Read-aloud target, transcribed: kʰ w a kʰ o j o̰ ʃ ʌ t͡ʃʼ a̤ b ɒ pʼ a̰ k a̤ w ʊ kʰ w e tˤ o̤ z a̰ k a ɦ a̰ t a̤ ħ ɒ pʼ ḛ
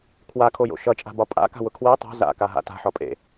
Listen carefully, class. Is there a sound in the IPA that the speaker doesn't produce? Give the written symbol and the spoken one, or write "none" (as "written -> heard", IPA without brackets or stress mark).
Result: none